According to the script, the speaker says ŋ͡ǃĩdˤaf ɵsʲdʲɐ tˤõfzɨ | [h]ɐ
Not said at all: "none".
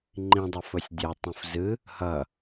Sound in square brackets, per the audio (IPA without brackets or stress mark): h